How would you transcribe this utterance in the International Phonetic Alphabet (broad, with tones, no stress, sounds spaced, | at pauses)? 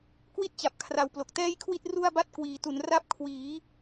k w i˥˩ t̚ t͡ɕ a˨˩ p̚ kʰ r a˨˩ w p l o˨˩ k̚ t ɛː˥˩ j kʰ w i˥˩ t̚ r u˥˩ a̯ b a˥˩ t̚ k w iː˩˦ t u˩˦ n r a˦˥ p̚ kʰ w iː˩˦